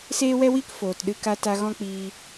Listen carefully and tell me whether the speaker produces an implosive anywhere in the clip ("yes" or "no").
yes